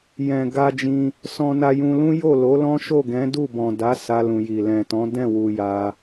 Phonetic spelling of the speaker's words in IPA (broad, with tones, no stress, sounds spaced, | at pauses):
j ɛ̃˨ ɡ a˧ d͡ʒ ĩ˧ | s ɔ̃˧ n a˧ j ũ˧ l ũ˦ j o˦˨ l o˨˦ l ɔ̃˦ ʃ o˦˨ ɡ ɛ̃˨˦ d u˦˨ b ɔ̃˨ d a˨˦ s a˧ l ũ˨ j i˨ l ɛ̃˨ t ɔ̃˨˦ d ɛ̃˦˨ w u˨ j a˧